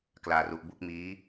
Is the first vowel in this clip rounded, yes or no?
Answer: no